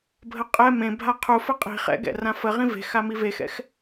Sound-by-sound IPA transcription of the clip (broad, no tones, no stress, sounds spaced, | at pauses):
bʱ ə qʼ ɛ m ẽ bʱ a qʰ u f ə qʼ i̤ χ ɛ̰ ɡ ɛ̰ r ã f ə ʁ ĩ v e̤ x a m i v e x ɛ̰ x